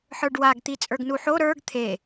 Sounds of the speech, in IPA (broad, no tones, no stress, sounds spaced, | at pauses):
ħ ə˞ ɖ w a ɡ t̪ i t͡sʼ ə˞ ɡ n u ħ o ɾ ə˞ ɡ t̪ʰ e